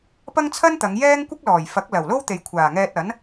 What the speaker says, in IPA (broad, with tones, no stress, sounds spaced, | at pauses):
p ɐ˥ ŋ t͡sʰ ɐ˥ n t̪ ɐ˨˧ ŋ j ɛː˥ ŋ kʷ ɪ˥ k̚ l ɔː˨˩ j f ɐ˨˥ k̚ l ɐ˨˩ w l o˥ w t̪ e˨ j kʷʰ aː˨˩ ŋ ɛː˧ t̚ ɐ˨˥ n